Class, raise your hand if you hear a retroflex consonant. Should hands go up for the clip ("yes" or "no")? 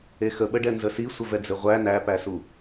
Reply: yes